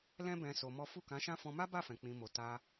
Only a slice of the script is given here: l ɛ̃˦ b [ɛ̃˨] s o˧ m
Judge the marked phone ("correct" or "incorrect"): incorrect